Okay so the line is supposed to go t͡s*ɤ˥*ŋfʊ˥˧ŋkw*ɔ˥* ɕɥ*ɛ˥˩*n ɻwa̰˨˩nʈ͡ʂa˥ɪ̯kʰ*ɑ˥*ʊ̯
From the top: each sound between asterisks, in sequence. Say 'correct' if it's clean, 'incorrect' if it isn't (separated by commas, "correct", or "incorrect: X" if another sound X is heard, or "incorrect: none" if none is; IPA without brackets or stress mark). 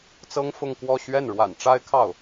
correct, incorrect: ɔ˥˧, correct, incorrect: ɑ˥˩